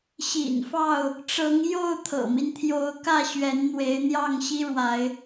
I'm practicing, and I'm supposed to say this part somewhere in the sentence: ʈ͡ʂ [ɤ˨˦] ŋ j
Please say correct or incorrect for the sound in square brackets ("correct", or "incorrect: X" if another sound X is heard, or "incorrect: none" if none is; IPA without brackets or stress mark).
correct